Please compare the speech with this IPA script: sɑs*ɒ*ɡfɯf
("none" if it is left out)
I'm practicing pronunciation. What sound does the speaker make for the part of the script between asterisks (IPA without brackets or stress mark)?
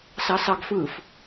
ɑ